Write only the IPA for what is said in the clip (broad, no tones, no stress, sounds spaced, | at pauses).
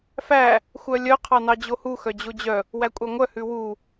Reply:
f æ | xʷ œ lʲ œ qʰ ɑ n ɑ d͡ʑ o h u x œ d͡ʑ o d͡ʑ œ | w æ kʷʼ ɑ ŋʷ œ h ʉ w u